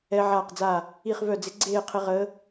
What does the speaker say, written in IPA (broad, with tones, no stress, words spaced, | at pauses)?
ɛ˦˥ʕaː˥˧qd͡za˥˧ | i˥˧χvœ˥˧d͡zɪ˦˥ ɡ͡ǀeː˥˧qʰɪ˦˥ʁəː˦˥